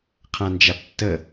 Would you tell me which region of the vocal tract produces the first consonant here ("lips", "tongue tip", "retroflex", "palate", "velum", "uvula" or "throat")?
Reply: uvula